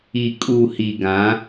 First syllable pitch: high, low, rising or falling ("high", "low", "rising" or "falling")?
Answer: low